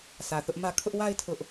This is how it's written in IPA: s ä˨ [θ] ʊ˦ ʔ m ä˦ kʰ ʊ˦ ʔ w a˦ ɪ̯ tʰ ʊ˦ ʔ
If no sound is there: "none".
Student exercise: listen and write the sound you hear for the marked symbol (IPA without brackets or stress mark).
θ